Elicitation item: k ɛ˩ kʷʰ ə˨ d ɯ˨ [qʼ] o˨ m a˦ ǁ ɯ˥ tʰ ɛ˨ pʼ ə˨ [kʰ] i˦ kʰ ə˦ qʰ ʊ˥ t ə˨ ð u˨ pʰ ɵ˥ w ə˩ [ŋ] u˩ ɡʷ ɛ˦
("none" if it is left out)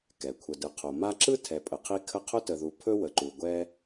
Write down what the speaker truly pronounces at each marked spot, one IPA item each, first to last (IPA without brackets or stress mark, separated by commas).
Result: qʰ, qʰ, ǃ